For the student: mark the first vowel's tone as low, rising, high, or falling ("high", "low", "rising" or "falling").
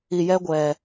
low